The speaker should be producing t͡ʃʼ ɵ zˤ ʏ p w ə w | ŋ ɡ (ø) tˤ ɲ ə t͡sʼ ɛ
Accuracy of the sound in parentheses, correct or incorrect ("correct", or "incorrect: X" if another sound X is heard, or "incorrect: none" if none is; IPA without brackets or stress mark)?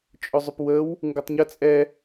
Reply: incorrect: ɵ